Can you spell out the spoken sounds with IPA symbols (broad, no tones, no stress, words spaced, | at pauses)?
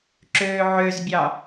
ǁøːʕøzbʲɑ